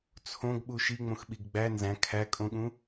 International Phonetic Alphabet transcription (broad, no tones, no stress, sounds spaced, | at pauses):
t͡sʰ õ ɡ ɓ u ʃ i ŋ͡m õ x ɓ i ɡ ɡ͡b æ n z æ̃ kʰ æ kʼ õ ɠ ũ